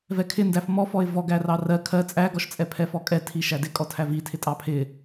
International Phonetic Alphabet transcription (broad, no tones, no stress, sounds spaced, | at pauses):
v ɛ kʰ ɪ n d æ f m ɔ f ɔ ɪ̯ v ɔ ɡ æ r ɑ r ɜ kʰ ɜ t͡sʼ æ ɡ ɔ ʃ t͡sʼ ɛ pʰ ɛ f ɔ kʼ ɛ tʰ i ʃ æ d ɪ kʼ ɔ tʰ æ v i tʰ ɪ tʼ ɑ pʰ ɪ